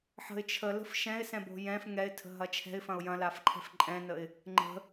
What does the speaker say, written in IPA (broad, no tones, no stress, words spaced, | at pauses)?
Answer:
ħə̤ɪ̯ t͡ʃʰələ̤f ʃɛ̃ɪ̯sɛ̃bo̤ jɛ̃f ŋɛɪ̯tʰə̤ɦɐ t͡ʃʰɛ̤ɪ̯fɐ̃ʊ̯ jɐ̃lafǃʰɛ̤f ǃʼɛ̃nəɪ̯ | ŋ͡ǃə̤